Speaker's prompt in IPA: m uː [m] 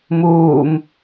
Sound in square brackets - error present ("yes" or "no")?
no